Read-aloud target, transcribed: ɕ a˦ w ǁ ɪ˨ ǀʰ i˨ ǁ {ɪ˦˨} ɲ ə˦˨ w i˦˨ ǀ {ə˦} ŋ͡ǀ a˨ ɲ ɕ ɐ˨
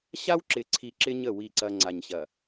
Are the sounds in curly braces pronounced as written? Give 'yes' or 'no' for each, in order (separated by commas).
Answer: no, no